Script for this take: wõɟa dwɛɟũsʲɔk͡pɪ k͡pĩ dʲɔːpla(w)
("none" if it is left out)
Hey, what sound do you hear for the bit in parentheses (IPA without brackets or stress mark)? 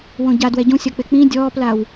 w